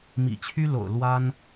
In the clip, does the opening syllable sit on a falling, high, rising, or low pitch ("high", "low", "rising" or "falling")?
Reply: low